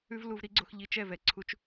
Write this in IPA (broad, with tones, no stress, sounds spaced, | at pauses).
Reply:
ʉ˦ v l u˧ v ɾ i˦ ɡ͡ǀ o˧ x ʎ i˧ t͡ʃ ɛ˦˨ v ɛ˨ ǀʰ u˦ t͡ʃ